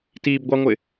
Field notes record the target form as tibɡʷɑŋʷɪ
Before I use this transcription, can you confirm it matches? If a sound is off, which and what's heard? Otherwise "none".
none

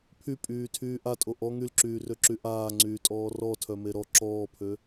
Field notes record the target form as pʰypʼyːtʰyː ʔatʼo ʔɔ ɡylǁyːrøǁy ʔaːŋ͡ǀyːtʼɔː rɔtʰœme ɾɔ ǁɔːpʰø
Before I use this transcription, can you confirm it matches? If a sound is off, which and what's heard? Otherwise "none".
ɡ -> ŋ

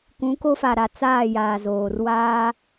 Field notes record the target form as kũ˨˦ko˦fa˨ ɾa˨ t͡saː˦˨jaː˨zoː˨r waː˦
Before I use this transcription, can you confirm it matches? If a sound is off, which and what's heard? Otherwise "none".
none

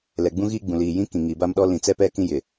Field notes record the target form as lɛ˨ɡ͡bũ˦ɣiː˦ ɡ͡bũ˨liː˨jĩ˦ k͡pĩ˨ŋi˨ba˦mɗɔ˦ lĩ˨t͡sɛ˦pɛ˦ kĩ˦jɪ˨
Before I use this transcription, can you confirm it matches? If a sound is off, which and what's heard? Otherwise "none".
k͡p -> k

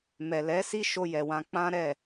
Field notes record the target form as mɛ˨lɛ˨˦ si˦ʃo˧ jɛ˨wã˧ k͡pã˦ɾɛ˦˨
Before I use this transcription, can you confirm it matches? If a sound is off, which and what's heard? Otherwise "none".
none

